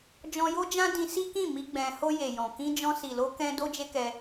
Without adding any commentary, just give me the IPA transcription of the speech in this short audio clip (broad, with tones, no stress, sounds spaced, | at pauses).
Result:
d͡ʒ ɔ̃˧ j o˦ d͡ʒ ã˦ d ĩ˧ s i˦ k ĩ˦˨ m i˧ ɡ͡b ɛ̃˧ h o˧ j e˨ j ɔ̃˨ k ĩ˧ d͡ʒ ɔ̃˧ s i˨ l o˧ k ɛ̃˧ d o˦ d͡ʒ e˦ k ɛ˦